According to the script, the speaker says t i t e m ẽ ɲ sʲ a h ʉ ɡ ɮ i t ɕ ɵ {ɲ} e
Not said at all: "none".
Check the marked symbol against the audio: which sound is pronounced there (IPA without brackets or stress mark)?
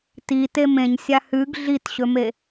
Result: m